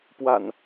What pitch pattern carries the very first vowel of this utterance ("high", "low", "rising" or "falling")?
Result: low